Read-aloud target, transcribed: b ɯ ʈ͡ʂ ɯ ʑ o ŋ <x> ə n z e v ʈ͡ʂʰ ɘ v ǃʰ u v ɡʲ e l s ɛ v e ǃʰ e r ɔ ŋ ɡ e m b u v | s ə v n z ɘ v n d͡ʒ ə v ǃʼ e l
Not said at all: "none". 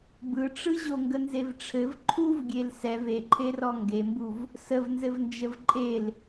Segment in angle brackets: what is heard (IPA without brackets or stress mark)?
ɡ